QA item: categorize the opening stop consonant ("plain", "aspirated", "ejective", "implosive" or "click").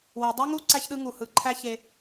plain